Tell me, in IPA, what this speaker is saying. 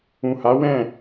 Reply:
ũ˨ha˨˦wɛ̃˦˨

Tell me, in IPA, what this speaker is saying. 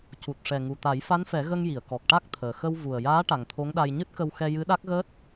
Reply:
cu˨˩t̚ ʂɛ˨˩ŋu˨˩t̪a˨˩˦j fa˧˥nfɛ˨˩˦ ɣə˧ŋji˨˩˨ə̯ kɔ˨˩k̚ʈa˦˥k̚t̪ʰəː˨˩ xə˧wvu˨˩ə̯jaː˧˥ ʈa˨˩ŋt̪ʰo˧˥ŋɗa˧j ɲɨ˦˥t̚kə˧wxɛ˧ jɨ˧˥ɗa˦˥k̚ɣəː˦˥t̚

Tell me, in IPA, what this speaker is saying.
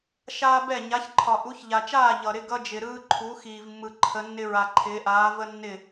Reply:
ʃaː˦bɛ˦˨ ɲa˨˦çǃʰɒ˨ ʔu˨˦çʎa˨t͡ʃaː˦˨ ʎʌ˨ɾɪ˦ ɡʌ˦d͡ʒɪ˨ɾɯː˦ ǃʰu˨˦ xiː˨vmːɯ˨ǃʰə˨˦nːɪ˦ ɹa˨ǃʰɪː˨˦ʔaː˨˦ və˦nːɪ˦˨

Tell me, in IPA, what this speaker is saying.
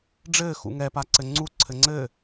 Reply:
ɖ͡ʐɘː xṵŋɛpaǀɘ ŋ͡ǀu ǀʰɘŋ͡ǀɘː

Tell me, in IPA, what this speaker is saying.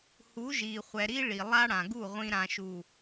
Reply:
hu˨˦ʒi˨χʷɛ˨ɾi˦ ɭi˨lˠa˦ɽã˨ɡu˦˨ ʁʷĩ˨ɾã˨ʃu˨

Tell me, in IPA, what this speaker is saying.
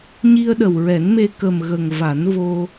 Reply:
ɲi˧ə̯ɗə˨˩wɹɛ˨˩˦nme˧ kə˨˩mɣə˨˩ŋ va˨˩˦nvo˧

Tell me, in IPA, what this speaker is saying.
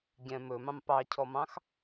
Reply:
ɟɛ̃ mɵmɑ̃m pɑcʰɔmɑ̃x

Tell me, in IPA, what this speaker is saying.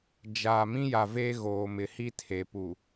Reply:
d͡ʒaː˨ mĩ˦ja˨ve˦ ɣoː˨mɪ˨hi˦ tʰe˨pu˨

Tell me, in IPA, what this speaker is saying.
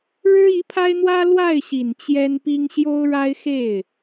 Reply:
ɻɻ̩˥i˧˥pʰa˥ɪ̯n̪wä˥ lwa˥˩ɪ̯ɕi˨˩n t͡ɕjɛ˥npi˥ŋ ɕjo˥ʊ̯ɻa˥ɪ̯xe˥˩ɪ̯

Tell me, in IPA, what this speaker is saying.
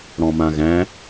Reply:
ɽɔ̃mãɣæ̃

